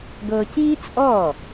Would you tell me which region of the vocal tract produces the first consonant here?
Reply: velum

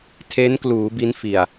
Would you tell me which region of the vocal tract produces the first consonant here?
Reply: tongue tip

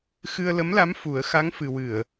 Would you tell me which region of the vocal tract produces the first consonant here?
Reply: velum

